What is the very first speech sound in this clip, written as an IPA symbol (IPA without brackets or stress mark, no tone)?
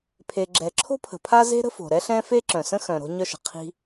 pʰ